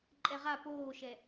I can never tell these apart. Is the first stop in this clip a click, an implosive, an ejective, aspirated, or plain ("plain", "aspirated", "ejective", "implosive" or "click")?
click